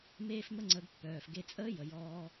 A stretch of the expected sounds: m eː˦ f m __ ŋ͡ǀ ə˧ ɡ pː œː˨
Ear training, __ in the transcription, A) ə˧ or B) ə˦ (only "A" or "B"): B